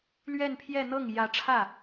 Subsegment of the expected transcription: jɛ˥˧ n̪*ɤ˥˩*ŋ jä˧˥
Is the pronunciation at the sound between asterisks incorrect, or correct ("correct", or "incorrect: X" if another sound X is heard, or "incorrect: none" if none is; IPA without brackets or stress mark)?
correct